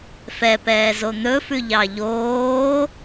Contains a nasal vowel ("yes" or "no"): no